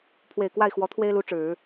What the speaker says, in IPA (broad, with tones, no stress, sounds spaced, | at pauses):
pʰ w e˨˩ ɪ̯ k w a˥˩ ɪ̯ x w ɔ˧˥ t̪ʰ w e˥ ɪ̯ l u˧˥ ʈ͡ʂ ɻ̩˨˩˦